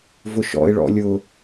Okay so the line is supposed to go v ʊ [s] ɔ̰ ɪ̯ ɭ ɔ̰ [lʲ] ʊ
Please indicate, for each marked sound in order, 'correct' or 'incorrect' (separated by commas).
incorrect, correct